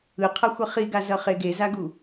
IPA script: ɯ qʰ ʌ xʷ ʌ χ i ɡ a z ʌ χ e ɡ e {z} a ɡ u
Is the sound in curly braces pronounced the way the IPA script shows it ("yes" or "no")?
yes